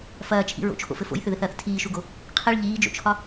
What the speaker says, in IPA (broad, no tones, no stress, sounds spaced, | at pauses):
f ɐː t͡ʃʰ ḭ ɹ o̰ t͡ʃʰ o̰ f ɘ f o̰ j θ ʏ ð ɘ θ ɐː θ tʰ iː ʃ u ɡ o | qʰ i ɭ ʎ iː d͡ʒ o̰ t͡ʃʰ ɒ